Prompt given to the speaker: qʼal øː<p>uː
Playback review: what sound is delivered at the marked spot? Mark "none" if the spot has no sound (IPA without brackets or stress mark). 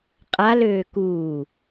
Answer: k